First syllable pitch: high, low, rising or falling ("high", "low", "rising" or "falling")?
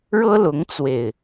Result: high